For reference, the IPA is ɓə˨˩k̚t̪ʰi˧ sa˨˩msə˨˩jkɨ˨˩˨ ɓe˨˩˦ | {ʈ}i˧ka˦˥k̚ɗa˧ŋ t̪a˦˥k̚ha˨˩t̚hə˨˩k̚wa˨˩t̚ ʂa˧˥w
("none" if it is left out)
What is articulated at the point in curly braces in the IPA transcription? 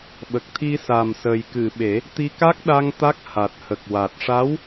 t̪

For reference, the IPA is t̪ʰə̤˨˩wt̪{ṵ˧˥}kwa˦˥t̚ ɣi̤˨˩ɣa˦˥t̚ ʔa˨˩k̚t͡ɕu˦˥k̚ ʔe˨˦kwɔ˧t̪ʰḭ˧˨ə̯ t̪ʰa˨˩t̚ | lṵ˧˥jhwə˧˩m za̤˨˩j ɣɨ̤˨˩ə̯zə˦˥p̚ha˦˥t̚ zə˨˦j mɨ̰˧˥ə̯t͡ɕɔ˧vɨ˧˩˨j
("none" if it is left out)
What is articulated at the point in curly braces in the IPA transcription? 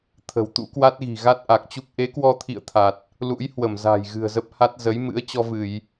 ṵ˧˥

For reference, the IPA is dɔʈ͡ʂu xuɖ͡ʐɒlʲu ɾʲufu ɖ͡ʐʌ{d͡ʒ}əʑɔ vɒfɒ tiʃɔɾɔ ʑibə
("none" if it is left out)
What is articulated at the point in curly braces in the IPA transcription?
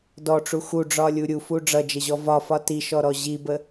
d͡ʒ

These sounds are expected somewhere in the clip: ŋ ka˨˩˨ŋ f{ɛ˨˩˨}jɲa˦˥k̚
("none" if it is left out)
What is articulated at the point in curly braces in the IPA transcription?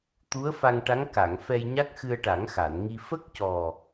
ɛ˧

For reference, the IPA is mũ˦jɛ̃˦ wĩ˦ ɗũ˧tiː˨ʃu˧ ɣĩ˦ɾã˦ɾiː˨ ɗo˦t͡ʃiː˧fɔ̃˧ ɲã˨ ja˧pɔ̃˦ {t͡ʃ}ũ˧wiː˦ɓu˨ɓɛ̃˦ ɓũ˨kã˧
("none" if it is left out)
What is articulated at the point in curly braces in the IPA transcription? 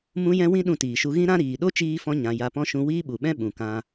ʃ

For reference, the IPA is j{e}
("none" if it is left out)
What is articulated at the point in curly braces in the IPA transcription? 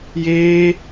eː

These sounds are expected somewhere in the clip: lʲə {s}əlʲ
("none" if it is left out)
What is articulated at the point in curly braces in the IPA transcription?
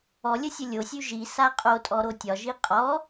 sʲ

